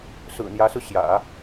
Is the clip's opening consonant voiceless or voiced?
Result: voiceless